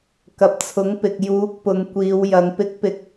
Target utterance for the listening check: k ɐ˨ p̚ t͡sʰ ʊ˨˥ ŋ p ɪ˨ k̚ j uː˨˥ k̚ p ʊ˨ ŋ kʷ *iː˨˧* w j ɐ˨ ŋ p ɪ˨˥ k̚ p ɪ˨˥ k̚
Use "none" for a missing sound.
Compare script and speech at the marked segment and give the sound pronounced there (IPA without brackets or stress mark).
iː˨˧